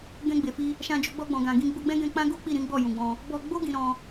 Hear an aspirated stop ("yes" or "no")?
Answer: no